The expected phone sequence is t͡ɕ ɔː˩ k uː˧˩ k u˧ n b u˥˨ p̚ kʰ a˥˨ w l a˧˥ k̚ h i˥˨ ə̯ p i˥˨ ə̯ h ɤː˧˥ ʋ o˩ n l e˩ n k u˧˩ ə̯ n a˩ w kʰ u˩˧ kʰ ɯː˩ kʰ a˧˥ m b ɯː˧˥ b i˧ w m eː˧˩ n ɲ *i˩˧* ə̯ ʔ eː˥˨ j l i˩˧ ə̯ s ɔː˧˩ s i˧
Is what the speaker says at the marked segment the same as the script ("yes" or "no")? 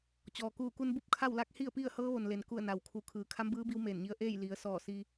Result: no